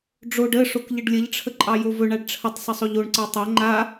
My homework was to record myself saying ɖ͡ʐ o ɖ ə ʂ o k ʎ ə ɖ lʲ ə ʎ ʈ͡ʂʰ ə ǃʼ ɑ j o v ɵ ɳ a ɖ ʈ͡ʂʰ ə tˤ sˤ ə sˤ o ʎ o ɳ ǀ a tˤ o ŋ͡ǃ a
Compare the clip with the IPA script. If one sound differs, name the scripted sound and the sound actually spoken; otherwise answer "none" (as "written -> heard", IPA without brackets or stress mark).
none